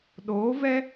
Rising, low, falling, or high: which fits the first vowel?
rising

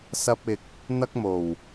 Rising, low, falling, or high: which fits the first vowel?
high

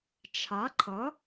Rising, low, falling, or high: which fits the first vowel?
rising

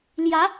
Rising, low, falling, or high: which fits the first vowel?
rising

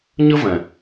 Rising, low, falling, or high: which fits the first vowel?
high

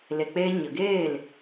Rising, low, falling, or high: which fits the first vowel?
low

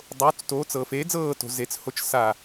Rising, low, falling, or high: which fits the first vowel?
rising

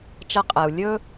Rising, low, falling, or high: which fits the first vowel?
high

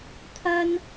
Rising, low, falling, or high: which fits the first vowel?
high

